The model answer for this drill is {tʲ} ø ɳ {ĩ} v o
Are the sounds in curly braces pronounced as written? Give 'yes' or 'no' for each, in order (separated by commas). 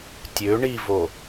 yes, no